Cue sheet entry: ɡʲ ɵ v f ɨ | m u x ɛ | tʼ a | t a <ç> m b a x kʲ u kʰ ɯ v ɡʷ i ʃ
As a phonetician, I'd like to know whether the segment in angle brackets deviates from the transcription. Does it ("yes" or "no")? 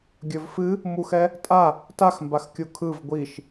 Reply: yes